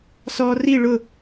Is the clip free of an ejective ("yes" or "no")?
yes